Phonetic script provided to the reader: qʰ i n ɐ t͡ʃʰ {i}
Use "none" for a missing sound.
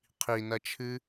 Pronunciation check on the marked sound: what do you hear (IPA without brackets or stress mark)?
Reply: ɨ